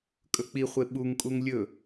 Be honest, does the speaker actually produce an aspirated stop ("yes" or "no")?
no